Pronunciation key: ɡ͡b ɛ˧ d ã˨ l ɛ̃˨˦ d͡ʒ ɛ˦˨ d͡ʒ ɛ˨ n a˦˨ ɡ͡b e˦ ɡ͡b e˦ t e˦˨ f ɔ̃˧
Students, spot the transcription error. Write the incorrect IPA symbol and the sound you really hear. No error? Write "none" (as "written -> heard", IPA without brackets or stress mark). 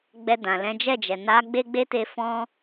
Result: a˦˨ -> a˨˦